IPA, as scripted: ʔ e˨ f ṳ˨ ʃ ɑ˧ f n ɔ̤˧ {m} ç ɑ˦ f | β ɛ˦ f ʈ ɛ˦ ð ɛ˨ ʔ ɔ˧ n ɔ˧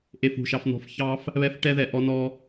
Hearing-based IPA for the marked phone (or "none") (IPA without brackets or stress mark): f